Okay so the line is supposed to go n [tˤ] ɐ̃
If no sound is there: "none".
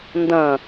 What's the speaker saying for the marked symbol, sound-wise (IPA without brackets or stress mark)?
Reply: d